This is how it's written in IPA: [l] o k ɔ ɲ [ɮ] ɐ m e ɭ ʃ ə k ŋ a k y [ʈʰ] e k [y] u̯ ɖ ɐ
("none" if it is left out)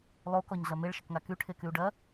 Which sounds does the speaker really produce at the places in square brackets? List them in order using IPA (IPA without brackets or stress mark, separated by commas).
lˠ, ɮ, ʈʰ, y